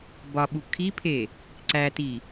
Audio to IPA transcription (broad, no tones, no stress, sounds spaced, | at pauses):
b ɒ ɓ u kʰ i pʰ e | ǀ æ t i